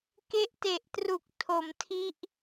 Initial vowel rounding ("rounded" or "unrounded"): unrounded